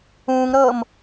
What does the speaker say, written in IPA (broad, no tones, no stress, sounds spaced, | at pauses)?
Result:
ũː ŋ ɾ ɤː m